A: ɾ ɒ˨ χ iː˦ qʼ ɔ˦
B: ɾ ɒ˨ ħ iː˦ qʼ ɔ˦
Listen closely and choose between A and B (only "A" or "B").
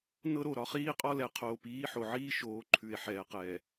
A